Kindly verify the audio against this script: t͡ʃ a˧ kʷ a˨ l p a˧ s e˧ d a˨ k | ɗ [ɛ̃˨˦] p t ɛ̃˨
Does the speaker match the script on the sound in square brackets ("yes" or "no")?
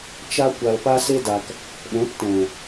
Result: yes